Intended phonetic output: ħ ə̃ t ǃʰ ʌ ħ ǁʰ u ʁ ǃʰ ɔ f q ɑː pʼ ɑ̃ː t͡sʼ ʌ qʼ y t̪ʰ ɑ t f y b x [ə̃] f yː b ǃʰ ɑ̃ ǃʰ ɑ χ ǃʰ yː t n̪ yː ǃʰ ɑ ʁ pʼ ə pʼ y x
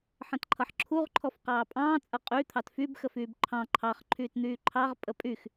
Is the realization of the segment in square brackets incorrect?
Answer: yes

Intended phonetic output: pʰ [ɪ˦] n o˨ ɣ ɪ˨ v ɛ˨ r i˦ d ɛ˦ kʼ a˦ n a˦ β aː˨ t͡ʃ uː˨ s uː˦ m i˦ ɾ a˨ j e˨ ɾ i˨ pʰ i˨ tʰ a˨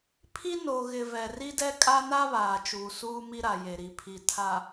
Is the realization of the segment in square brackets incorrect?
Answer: yes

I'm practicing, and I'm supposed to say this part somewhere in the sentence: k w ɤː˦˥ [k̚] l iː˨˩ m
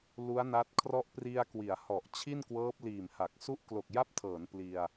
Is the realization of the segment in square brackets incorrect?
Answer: yes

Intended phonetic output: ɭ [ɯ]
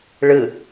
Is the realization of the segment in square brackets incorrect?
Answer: no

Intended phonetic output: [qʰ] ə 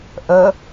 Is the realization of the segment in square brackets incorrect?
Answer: yes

